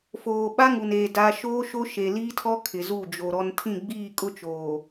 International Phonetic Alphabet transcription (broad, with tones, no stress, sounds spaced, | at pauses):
f oː˨ ɓ a˦ ŋ u˨ n e˨ d a˦ ʃ oː˦ ʃ o˦ ʃ e˨ l iː˦ tʰ ɔ˦ kʰ ɪ˨ z u˦˨ d͡ʒ o˨ ɾ ɔ˦ n tʰ ĩ˦˨ ɡ͡b iː˦˨ kʼ ʊ˦ t͡ʃ oː˨